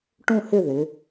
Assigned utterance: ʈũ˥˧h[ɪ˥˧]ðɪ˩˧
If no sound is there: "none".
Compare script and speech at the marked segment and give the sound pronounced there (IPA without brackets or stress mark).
ɪ˥˧